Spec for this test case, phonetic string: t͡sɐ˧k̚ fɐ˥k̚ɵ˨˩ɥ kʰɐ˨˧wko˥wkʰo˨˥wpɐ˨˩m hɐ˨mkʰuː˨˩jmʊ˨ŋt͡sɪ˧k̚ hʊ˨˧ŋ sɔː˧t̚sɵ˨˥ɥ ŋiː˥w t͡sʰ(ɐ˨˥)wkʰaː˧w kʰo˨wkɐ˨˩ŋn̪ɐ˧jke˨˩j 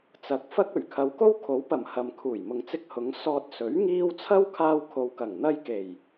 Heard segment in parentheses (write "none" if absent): ɐ˥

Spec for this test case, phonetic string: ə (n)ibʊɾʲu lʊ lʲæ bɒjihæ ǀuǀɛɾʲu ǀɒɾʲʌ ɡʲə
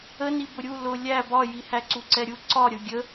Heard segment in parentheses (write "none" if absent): n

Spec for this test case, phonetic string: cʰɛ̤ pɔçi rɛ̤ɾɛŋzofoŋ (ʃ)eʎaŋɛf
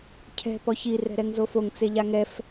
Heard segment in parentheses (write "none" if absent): t͡s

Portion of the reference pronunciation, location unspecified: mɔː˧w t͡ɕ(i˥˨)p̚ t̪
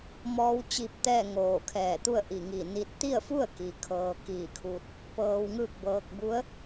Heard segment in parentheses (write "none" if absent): i˧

